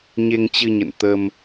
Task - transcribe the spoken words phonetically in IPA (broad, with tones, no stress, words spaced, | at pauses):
ɲe˧ŋt͡ɕɨ˧ɲə̰˧˨n t̪ə˧m